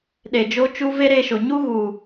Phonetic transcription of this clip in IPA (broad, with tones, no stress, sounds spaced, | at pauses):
ɗ e˨ d͡ʒ o˦ t͡ʃ u˦ v e˦ ɾ e˧ ʃ o˨ ɲ u˦ ɣ u˨